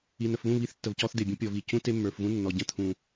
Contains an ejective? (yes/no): no